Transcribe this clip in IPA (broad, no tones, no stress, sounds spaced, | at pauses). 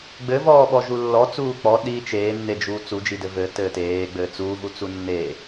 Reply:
ɡ͡b ɘ v ɔː ɓ ɔ ʒ u lː ɔ t͡s uː k͡p ɔ ɗ i t͡ʃ eː nː e d͡ʒ uː t͡s u d͡ʒ i d ɘ v ɘ t ɘː t eː ɡ͡b ɘː t͡s uː v u t͡s u nː e